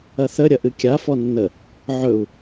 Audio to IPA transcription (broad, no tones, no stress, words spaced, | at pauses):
ɐθə ɾʲɐʔɨkʲa fɔnːə | ʕɵu̯